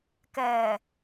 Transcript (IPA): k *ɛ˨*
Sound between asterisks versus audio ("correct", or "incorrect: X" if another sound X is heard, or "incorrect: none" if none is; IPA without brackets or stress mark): incorrect: ɛː˨